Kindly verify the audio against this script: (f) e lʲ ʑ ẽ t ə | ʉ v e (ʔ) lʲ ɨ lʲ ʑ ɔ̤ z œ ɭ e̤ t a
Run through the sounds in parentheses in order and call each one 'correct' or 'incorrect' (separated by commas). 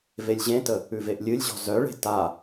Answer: incorrect, correct